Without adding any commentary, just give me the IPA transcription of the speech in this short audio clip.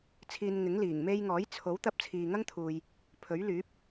t͡sʰ iː˧ n ŋ ɪ˨˥ ŋ l iː˨˩ ŋ m e˧ j ŋ ɔː˨˥ j t͡sʰ o˨˥ w t̪ ɐ˧ p̚ t͡sʰ iː˨ ŋ ɐ˥ ŋ t̪ʰ uː˨ j | pʰ ɵ˨˥ ɥ l yː˨˥ p̚

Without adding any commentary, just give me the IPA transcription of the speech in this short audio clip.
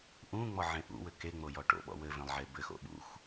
ʔ ũ ŋ͡m ɔ ʕ ẽ ʔ ṵ w ɘ k e ŋ͡m o j ɔ ʈ o̰ ɓ ɔ̰ w ɘ v ẽ lˠ ʕ e b ɘ x o̰ ɓ ṵ x

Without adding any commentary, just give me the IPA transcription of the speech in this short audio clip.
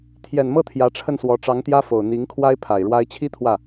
t̪ʰ j ɛ˨˩ n m ɤ˥˩ t̪ʰ j ä˧˥ ʈ͡ʂʰ ə˥˩ n s w ɔ˧˥ ʈ͡ʂ ɑ˧˥ ŋ t̪ j ä˥ f o˨˩ ʊ̯ n̪ i˧˥ ŋ kʰ w a˥ ɪ̯ pʰ a˨˩ ɪ̯ ɻ w a˧˥ ɪ̯ t͡ɕʰ i˥ t̪ʰ w ä˥˩

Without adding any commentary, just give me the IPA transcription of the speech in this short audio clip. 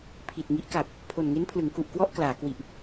pʰ i˨˩ t̚ ŋ i˦˥ ʔ k a˨˩ p̚ | pʰ o˨˩ n ŋ e˦˥ n pʰ l ɯ˩˦ ŋ k u˨˩ ʔ k w ɔ˥˩ ʔ k l aː˩˦ k w i˨˩ ʔ

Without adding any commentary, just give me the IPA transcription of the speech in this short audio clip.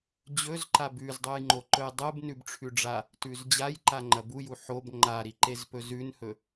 d͡ʑ ɵ z ǃ a b ʉ z dˤ u j ŋ͡ǃ o ǃ ɵ j dˤ ɨ b n ʉ b ʈ͡ʂʰ ʉ ɖ͡ʐ a | t ʉ z d͡ʑ a j ǃ a ŋ͡ǃ ɐ b u j u ħ o b ŋ͡ǃ a ɾ i ǃ e z p ɵ z ʉ n h ɵ

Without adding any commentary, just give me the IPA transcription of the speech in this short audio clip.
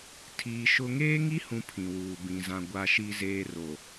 tʰ iː˨ ʃ ʊ˦ ŋ eː˦ ŋ i˦ h ũ˨ pʰ ĩ˨ w uː˨ b ĩ˨ z ã˨ ɡʷ a˨ ʃ i˨ z eː˨ r o˨

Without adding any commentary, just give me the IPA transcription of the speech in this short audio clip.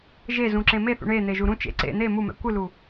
ʒ e z ũ ǁ ẽ m e θ ṵ ɳ e n̪ e ʒ u ɾ ũ t͡ʃ ḛ ǀ ḛ n̪ e m u m ɛ̰ kʷ ɯ l u

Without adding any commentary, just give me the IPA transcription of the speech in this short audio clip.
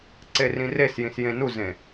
ǀ e r ĩ r e s j ĩ s j ẽ n u z ẽ

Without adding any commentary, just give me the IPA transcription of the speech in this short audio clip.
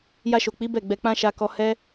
j a˧ ʃ o˨ k͡p i˨˦ b ɛ˦˨ ɡ͡b ɛ˧ k͡p ã˦ ʃ a˧ k ɔ˧ h ɛ˦

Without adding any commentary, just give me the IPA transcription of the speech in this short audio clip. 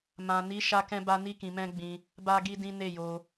m ã˨ n i˨˦ ʃ a˦ k ɛ̃˦ b a˦ n i˦ k ĩ˧ m ɛ̃˦ ɡ͡b ĩ˧ | b a˦ ɡ i˦ d ĩ˦ n e˦˨ j o˧

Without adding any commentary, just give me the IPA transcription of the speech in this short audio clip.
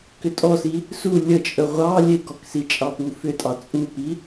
k ʏ tʼ ɔ s i | s u lʲ ə t͡ʃʼ ə ʁʷ ɑ lʲ e ɡ ɔ k s i t͡ʃʼ ɑ p u f ʏ tʼ ɑ t͡sʼ u p i

